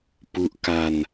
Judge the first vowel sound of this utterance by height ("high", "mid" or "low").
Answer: high